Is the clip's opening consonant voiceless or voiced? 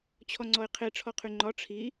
voiceless